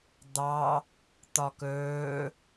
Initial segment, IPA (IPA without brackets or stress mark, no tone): d̪